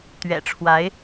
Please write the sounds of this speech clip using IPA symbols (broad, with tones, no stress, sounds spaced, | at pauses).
t̪ ɥ ɛ̰˨˩ ʈ͡ʂʰ w a˧˥ ɪ̯